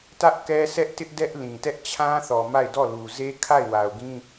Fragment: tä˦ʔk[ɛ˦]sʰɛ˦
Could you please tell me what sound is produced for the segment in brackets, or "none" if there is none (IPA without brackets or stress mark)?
ɛ˦